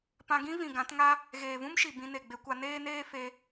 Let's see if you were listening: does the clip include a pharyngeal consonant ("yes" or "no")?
no